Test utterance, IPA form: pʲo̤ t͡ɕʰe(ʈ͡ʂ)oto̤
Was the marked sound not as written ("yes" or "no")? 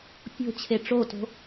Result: no